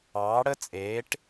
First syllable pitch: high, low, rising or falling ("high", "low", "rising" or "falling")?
rising